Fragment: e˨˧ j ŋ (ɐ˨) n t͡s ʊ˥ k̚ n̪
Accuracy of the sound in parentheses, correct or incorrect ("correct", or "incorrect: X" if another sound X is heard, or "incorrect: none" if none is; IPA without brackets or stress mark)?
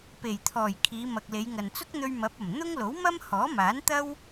correct